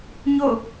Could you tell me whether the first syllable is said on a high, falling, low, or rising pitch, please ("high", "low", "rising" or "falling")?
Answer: falling